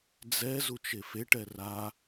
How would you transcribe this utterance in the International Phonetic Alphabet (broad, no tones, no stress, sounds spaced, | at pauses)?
d͡z ɛ z u t͡ʃ e f e ʈ ɛ r a